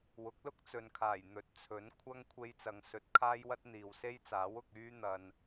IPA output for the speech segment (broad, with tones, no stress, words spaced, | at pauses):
wʊ˨˥k̚lʊ˥k̚t͡sɵ˨nkʰaː˨˩j n̪ɵ˨t̚ t͡sʰɵ˨˥nkʷʰɐ˥ŋ kʷʰe˧jt͡sɐ˨ŋ sɵ˨˥t̚ kʰaː˥jwɐ˥t̚ n̪iː˨wse˥jt͡saː˨˥w ʊ˧k̚yː˥ n̪ɐ˨n